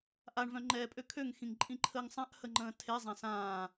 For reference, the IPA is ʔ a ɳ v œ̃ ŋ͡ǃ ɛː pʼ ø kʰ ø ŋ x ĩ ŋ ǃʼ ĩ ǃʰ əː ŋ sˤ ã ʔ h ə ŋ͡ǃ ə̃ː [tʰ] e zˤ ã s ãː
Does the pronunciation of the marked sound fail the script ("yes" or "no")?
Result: no